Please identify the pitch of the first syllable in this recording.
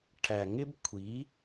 low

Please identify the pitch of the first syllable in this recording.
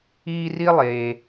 high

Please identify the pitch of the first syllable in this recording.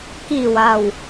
low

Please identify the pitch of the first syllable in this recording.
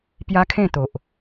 high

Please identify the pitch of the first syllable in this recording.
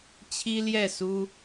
high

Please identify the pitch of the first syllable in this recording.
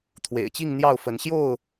low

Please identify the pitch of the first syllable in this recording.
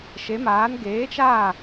rising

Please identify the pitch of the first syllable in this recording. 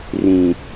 low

